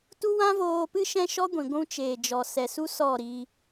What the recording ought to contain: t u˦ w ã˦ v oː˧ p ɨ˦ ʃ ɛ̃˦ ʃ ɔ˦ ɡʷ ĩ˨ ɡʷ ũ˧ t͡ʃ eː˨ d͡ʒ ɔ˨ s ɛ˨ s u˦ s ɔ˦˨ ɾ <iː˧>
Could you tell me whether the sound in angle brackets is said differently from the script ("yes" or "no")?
no